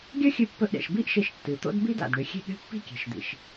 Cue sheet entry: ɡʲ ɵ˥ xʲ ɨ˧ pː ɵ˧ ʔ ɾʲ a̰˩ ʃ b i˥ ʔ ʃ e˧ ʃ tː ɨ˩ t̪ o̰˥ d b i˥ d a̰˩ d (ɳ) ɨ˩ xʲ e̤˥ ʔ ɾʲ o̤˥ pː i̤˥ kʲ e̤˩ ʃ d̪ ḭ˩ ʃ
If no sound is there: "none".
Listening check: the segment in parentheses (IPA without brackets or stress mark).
ɳ